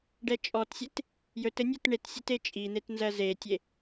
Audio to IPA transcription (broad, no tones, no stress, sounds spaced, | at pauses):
ɖ ɛ t͡ʃʼ ɔ t sʲ e t | j ɵ t ɘ nʲ ɜ t ɳ e t sʲ e t e t͡ʃʼ i n̪ e t n z ɜ z e tʲ e